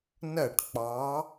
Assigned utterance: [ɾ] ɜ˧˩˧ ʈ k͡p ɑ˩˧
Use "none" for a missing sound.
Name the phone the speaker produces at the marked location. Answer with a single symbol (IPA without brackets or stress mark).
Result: n